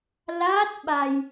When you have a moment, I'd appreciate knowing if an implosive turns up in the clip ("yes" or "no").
yes